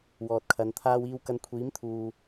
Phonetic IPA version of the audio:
wɔː˨t̚kʰɐ˨˧n t̪ʰaː˧wiː˧wkɐ˧nkʷʰiː˨˥m t̪ʰuː˨

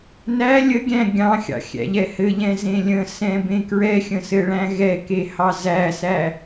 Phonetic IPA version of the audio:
næ lʲəɡʲæ̃ ɡʲɑ̃xʲɑ̰xʲæ̰ʎɛ hɘʎɛ̃zẽ lʲə̃sɛ̃bẽ kɹɛxʲə̃sɘɭæ̃ ɣɛkehɑ zæsæ

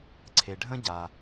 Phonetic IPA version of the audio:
ǀʰe˩ɖʱə̃˥ɟa˩

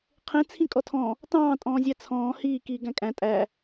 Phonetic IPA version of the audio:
qʰẽ t͡sʰĩkʼɔtʰɔ̃ | tɑ̃ː tʼɔ̃ːzʲæt͡sʰɔ̃ː hiː kiːɡæ̃kʼæ̃ tʼæ

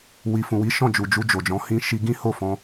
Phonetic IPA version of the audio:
wi˨fũ˨wi˨˦ ʃɔ̃˦˨d͡ʒu˨ d͡ʒu˧d͡ʒo˨d͡ʒɔ̃˨˦ hĩ˧ʃi˧ ɡĩ˦ho˦˨fɔ̃˧

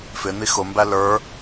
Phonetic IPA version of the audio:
fɪn̪i xʊmbæ lə˞

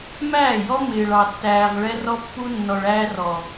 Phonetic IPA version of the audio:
mæː˦˨jɔ˦ mɪː˨ɭɑ˨tːæː˨ʁ ɭɛ˦rɔ˦pːu˦ nːɔ˨ɭæː˦rɔ˨

